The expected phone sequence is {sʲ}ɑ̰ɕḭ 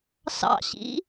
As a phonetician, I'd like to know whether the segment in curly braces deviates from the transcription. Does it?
yes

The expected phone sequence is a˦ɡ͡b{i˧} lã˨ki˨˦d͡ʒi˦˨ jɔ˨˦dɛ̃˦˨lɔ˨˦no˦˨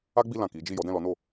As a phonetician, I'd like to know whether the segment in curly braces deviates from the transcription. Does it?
no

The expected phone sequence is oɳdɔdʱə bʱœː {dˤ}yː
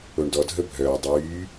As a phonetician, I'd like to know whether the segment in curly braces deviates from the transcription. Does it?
no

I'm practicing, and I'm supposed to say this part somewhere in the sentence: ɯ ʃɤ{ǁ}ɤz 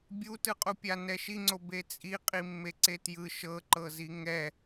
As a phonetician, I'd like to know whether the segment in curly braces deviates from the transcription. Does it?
yes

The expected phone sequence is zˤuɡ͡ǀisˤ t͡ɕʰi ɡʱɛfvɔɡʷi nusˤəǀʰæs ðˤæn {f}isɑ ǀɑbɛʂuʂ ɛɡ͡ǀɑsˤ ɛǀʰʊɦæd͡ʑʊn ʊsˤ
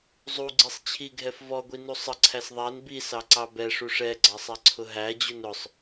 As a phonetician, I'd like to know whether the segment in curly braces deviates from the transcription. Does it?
yes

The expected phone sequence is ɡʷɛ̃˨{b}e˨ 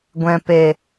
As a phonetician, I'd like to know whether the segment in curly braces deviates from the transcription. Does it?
yes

